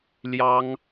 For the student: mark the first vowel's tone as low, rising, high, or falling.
high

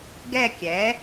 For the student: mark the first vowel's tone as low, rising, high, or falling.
falling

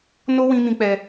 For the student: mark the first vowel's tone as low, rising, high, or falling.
high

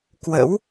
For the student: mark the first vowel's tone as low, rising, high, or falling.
rising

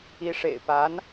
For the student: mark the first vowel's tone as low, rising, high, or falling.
rising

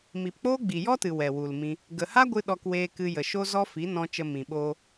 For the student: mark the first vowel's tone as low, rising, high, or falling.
low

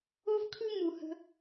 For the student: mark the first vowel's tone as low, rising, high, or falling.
high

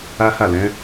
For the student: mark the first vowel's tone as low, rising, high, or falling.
high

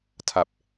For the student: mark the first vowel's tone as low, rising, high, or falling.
low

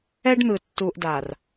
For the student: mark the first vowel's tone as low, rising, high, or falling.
high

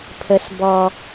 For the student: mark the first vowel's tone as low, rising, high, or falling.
high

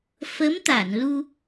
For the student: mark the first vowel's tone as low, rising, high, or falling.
rising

